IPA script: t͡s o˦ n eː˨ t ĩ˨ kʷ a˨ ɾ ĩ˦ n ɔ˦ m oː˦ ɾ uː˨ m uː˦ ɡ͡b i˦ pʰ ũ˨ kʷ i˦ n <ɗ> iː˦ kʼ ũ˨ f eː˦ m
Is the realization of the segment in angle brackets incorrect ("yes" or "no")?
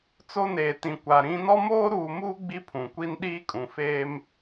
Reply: no